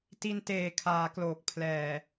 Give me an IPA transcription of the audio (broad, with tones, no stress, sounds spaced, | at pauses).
t i˧ n t eː˨˩ kʰ aː˩˦ k l oː˨˩ k̚ pʰ l ɛː˨˩